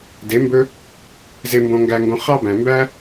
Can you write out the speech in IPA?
d e˨˦ m b ɵ˦ | z e˧ m b õ˧ ŋ ɡ æ˧ ŋ ɡ õ˧ χ ɑ˦ b æ̃˨ m b æ˦

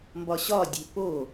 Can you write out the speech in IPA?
m b ɒ ɕ ɒ dʲ e̤ p o

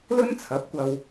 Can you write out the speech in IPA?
l ɵ˥ n t͡sʰ ɐ˨˥ p̚ kʷ ɐ˧ w

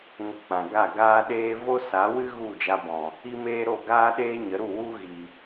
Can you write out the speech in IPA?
ŋ ə˧ k͡p ã˨ ɡ a˦˨ ɡ aː˦ ɗ eː˦ v o˦ s a˨˦ w ɨ˦ ɣ u˦˨ d͡ʒ a˧ b ɔ̃˨ | i˦ m eː˦ ɾ o˦˨ ɡ aː˦ ɗ eː˦ ɲ ə˨˦ ɾ u˦˨ w u˦ ɣ i˨

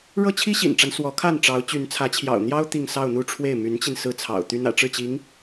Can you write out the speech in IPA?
ɻ ɤ˥ t͡ɕʰ i˥ ɕ ḭ˨˩ n ʈ͡ʂ a˦ n s w ɔ˧˥ kʰ a˥˩ n ʈ͡ʂ ɑ˧˥ ʊ̯ t͡ɕ y˧˥ n t͡sʰ ä˧˥ t͡ɕʰ j ɑ̰˨˩ ʊ̯ n̪ j ɑ˥ ʊ̯ t̪ i˥˧ ŋ s ɑ˥˧ ʊ̯ n̪ u˥˧ ʈ͡ʂʰ w e˥˩ ɪ̯ m y˧˥ n t͡ɕ i˧ n s ɹ̩˥ t͡sʰ ɑ̰˨˩ ʊ̯ t̪ y˥ n ä̰˨˩ ʈ͡ʂ ɻ̩˥˩ t͡ɕ i˧˥ ŋ

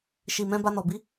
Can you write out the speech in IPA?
ʃ i˨ m ɛ̃˧ b a˧ n ɔ˨ b i˨˦

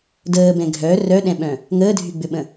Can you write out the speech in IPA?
d əː b ɛ̃ ɡʱ œ r œ ɗ ɛ̃ ɓ œ̃ | ŋ əː dʱ y ɡ͡b ʏ ɓ ə̃

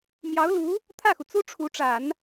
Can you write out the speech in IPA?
m j ɑ˧˥ ʊ̯ l u˧˥ | t̪ʰ ä˥˩ x u˩ t͡s u˥ ʈ͡ʂʰ u˧˥ ʈ͡ʂ a˨˩˦ n

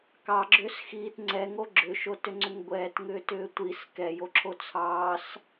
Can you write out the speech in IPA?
k ɑ ɡ͡ǁ ʏː s x iː t ŋ͡ǀ ɛ ŋ o ɡ͡ǁ ʏ ʃ o t ʏ ŋ͡ǀ ʏ ŋ ɡʷ ɛː t ŋ ʏː t ʏː tʷ i s k ɛ j o ǁʰ o t͡sʰ ɑː s

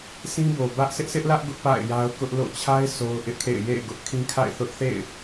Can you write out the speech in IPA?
s ĩ˦ b o˨ b ä˦ ʔ s ɪ˦ ʔ sʰ ɪ˦ ʔ l ä˦ ʔ ɡ ʊ˦ ʔ p a̰˦˨ ɪ̯ j a˦ ʊ̯ k ʊ˦ ʔ l o̰˦˨ t͡ɕʰ a˦ ɪ̯ s o˦ ʊ̯ ʔ ɪ˦ ʔ kʰ ḛ˦˨ ɪ̯ j ḛ˦˨ ɪ̯ ɡ ʊ˦ ʔ kʰ ĩ˦ kʰ a̰˦˨ ɪ̯ θ ʊ˦ ʔ θ ḛ˦˨ ɪ̯

